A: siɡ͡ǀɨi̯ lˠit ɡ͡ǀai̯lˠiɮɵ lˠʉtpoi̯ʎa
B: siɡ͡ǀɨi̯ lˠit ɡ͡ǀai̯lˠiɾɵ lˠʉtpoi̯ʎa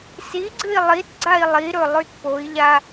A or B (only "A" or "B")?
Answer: B